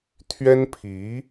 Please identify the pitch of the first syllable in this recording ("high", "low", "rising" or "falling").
high